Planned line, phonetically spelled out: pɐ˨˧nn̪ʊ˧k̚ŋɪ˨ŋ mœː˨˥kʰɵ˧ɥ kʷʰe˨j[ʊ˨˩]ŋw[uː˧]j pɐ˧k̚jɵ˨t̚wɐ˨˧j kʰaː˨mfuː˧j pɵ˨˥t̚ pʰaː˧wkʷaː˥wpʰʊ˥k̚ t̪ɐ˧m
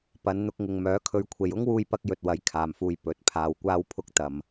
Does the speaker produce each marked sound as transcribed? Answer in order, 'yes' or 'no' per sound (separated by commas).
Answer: no, yes